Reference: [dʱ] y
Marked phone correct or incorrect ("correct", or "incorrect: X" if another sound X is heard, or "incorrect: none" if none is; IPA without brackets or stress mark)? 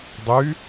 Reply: incorrect: dˤ